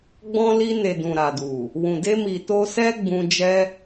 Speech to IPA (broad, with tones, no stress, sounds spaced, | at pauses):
ɡ͡b ɔ̃˧ l i˧ n e˨ d ũ˨ ɾ a˨ d u˨ | w ũ˨ d e˧ m i˨ t o˧ s ɛ˦ ɡ͡b ũ˧ d͡ʒ ɛ˦